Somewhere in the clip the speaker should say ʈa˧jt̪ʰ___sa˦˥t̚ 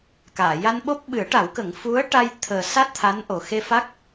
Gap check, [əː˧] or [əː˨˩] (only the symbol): əː˨˩